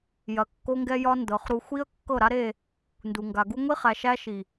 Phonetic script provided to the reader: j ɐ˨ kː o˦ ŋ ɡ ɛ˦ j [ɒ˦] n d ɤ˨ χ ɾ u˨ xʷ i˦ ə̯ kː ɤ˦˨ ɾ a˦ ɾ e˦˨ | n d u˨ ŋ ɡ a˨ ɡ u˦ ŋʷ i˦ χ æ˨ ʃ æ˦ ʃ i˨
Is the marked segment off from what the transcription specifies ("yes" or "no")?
no